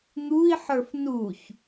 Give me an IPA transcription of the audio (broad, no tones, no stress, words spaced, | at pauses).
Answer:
n̪ui̯ħə˞f nuç